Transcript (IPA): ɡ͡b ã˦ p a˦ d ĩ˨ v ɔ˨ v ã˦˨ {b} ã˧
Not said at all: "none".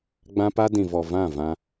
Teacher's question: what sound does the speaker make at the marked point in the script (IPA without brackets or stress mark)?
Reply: v